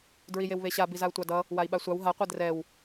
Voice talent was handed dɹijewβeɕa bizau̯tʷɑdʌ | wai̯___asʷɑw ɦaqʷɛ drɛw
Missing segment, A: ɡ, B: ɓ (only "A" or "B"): B